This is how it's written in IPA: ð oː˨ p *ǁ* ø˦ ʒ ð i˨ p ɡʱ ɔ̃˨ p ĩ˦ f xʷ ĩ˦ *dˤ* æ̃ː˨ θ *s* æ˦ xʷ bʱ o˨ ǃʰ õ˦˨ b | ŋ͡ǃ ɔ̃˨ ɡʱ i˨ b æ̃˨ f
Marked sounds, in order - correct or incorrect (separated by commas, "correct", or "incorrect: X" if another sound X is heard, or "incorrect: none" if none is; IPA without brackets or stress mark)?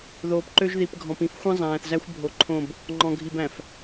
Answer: incorrect: ǃ, incorrect: zˤ, incorrect: z